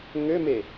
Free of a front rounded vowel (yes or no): no